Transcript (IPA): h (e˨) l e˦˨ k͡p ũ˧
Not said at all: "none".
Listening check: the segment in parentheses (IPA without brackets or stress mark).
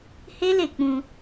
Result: e˦